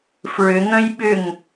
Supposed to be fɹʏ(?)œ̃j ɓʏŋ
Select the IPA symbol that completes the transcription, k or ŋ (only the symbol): ŋ